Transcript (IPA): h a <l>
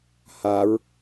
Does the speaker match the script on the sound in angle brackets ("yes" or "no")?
no